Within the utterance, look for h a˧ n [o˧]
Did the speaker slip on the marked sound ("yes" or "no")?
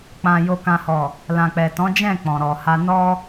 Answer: yes